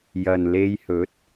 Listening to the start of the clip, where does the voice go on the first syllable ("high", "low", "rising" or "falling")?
low